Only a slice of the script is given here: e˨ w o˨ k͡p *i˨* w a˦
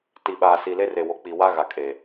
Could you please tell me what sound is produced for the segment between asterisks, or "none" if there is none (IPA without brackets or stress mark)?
i˨